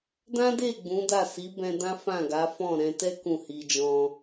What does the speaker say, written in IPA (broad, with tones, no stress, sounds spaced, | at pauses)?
d ã˦ d e˦˨ ɡ͡b ũ˨˦ d a˦˨ s i˨˦ b ɛ̃˧ d ã˦ f ã˦˨ ɡ a˨˦ f ɔ̃˦˨ ɾ ɛ̃˧ t ɛ˦ k ũ˦˨ h i˧ d͡ʒ ɔ̃˧